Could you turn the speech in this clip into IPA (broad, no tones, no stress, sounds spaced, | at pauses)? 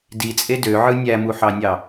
d i t͡sʼ e d ø ʕ ɯ nʲ æ m u ħ ɑ nʲ ɑ